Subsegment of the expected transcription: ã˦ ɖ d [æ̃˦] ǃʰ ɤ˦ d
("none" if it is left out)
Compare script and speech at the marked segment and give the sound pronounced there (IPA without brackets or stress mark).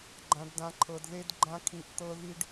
ã˦